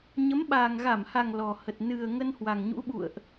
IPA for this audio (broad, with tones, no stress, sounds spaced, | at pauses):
ɲ ə˨˦ m ɓ aː˨˩ ŋ ɣ a˧˩ m h a˨˩ ŋ l ɔ˨˩ h ə˨˩ t̚ n ɨ˨˩ ə̯ ŋ ə˧ n h w a˨˩ ŋ ɲ ṵ˧˥ ɓ ṵ˧˨ ə̯ ʔ